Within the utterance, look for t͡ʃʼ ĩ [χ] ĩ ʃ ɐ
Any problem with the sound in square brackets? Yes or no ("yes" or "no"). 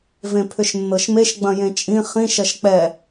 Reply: no